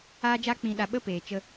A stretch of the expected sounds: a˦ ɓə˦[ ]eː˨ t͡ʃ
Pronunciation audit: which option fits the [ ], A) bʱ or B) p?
B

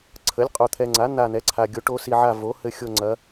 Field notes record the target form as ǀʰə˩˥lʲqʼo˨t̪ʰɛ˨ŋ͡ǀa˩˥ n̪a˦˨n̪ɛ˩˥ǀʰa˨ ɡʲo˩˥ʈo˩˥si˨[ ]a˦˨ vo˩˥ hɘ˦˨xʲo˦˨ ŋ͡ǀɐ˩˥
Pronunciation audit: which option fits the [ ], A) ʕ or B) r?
A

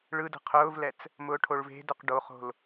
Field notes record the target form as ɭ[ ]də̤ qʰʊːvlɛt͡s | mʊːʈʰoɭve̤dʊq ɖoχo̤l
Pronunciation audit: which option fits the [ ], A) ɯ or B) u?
A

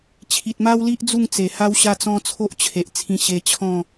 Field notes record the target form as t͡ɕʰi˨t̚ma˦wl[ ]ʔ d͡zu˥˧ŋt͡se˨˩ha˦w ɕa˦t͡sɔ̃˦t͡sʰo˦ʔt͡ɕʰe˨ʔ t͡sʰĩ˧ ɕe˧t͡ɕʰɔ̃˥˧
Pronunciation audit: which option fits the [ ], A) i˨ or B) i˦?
B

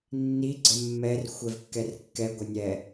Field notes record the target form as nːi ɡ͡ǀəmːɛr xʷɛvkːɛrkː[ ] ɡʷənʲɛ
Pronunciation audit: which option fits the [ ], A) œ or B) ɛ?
B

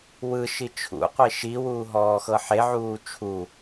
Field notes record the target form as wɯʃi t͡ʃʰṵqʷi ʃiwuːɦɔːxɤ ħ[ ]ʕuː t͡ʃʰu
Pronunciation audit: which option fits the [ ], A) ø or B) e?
B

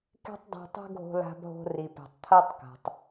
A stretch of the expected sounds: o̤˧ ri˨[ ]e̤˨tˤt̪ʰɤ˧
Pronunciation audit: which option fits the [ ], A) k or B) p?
B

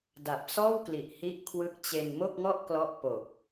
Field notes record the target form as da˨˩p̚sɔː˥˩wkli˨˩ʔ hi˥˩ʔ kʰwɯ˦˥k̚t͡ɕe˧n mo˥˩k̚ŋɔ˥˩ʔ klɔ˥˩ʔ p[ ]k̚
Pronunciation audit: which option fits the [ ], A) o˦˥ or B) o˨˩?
B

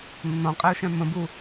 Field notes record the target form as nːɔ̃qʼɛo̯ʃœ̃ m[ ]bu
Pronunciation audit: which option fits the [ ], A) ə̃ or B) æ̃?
A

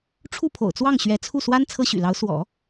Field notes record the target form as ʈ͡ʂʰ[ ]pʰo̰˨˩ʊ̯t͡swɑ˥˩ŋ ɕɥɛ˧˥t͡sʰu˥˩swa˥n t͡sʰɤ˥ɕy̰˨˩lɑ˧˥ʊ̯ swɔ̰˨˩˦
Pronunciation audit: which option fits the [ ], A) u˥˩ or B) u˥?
A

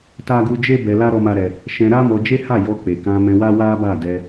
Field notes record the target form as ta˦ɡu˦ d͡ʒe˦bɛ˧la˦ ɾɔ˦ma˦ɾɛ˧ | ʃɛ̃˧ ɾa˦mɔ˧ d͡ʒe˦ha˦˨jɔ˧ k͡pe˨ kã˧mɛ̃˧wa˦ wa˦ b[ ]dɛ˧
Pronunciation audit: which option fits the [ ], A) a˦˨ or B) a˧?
A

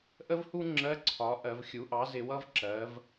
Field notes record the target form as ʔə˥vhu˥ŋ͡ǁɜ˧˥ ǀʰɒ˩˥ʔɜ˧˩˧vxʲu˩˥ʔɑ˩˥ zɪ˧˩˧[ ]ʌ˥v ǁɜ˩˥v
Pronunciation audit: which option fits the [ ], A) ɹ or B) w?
B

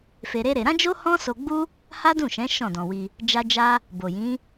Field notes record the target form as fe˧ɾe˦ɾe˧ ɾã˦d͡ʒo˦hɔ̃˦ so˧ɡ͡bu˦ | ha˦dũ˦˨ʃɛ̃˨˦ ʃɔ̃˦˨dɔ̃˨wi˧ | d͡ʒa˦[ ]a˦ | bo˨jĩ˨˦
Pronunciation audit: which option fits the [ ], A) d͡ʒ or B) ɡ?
A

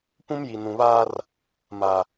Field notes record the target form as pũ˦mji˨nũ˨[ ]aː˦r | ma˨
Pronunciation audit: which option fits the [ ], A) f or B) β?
B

